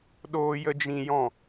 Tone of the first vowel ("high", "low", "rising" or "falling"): high